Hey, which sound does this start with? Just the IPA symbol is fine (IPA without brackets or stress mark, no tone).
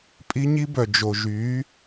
pʼ